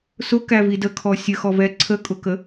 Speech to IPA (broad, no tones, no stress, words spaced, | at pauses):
sʊkævi dəkʰɔ sʲəxɔvɛ ǀʰəkʼʊkə